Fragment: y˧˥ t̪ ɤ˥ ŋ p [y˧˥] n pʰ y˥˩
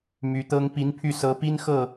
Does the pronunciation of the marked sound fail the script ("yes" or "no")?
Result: yes